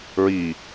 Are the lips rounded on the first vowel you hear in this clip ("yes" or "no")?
no